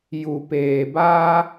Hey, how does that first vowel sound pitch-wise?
low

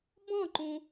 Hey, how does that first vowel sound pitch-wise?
falling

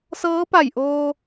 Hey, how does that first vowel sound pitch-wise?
rising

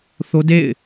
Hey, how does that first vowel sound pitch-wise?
high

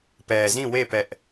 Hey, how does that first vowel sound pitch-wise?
low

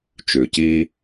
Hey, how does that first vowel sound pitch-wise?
low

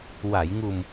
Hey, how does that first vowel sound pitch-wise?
low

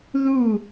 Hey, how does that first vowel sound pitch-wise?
falling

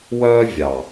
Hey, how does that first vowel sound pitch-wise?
high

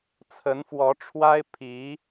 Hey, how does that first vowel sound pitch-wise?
rising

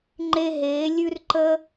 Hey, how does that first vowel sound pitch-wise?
high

